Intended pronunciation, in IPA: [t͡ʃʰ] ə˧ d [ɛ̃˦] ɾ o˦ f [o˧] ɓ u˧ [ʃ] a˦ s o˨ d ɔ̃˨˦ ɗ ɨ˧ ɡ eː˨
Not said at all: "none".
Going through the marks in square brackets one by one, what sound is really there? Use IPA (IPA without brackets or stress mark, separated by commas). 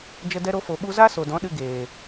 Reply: d͡ʒ, ɛ˦, o˨, z